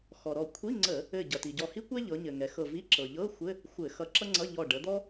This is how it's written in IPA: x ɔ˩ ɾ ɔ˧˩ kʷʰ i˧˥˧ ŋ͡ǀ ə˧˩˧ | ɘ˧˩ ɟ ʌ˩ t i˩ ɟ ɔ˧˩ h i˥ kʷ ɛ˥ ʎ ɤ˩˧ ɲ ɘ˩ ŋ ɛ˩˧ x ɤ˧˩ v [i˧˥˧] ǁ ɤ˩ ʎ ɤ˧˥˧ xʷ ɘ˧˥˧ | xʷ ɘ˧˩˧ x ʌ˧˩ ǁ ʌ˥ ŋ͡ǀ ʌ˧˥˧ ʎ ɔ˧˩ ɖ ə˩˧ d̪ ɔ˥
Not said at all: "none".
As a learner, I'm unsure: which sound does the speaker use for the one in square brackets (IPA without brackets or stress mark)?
i˧˥˧